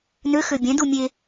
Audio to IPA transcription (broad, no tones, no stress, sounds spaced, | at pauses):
n ø x ø bʲ ɛ̃ d u mʲ e